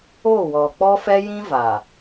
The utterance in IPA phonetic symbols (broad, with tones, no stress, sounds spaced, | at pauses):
o˦˨ w ɔ˨ k͡p ɔ˦ f ɛ˦ j ĩ˦ v a˨